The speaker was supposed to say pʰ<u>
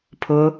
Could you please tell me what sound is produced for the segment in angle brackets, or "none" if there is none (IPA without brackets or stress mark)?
ʊ